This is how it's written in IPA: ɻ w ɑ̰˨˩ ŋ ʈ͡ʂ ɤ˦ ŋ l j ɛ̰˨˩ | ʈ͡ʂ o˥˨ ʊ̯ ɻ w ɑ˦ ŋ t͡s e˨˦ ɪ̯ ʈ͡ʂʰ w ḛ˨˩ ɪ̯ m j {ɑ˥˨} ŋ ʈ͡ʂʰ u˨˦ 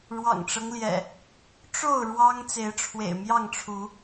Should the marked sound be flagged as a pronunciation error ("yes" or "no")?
no